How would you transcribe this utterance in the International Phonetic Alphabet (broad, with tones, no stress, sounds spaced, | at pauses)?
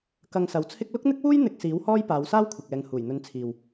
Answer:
k ɐ˧ ŋ s ɐ˨˥ w t͡sʰ ɪ˥ k̚ l ʊ˥ k̚ n̪ ɪ˥ k̚ w uː˥ j n̪ ɪ˧ k̚ s iː˨˥ w h ɔː˥ j p aː˨˧ w s aː˥ w kʷʰ ɪ˨ k̚ ɛː˨ ŋ h uː˨˩ j n̪ ɵ˨˧ n t͡sʰ iː˨ w